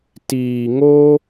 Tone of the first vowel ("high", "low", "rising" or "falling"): low